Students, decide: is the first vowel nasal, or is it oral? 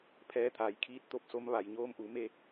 oral